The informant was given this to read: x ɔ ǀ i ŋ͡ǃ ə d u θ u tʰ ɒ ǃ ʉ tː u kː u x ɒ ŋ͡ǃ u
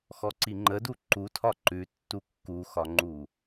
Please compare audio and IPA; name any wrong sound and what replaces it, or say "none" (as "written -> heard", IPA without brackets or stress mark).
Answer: θ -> ǃ